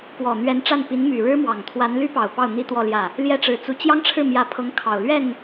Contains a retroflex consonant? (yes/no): yes